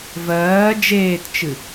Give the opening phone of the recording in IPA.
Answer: v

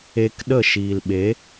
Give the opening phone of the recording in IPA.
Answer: e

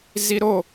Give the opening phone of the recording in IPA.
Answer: z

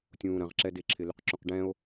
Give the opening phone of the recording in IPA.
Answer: tʲ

